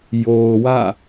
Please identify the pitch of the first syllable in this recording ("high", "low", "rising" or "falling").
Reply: low